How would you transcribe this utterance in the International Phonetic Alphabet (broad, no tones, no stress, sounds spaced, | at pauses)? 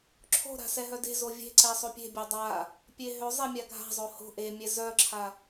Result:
ǁʰ o̤ ɾ a̤ s ɛ ɦ œ d e̤ z o vʲ e̤ ǀ ɛ sˤ o pʲ e̤ bʲ e dˤ a | pʲ e ɦ ø zˤ e mʲ a ɡʱ a̤ zˤ o h o̤ ʔ e mʲ ɛ z œ ǁʰ a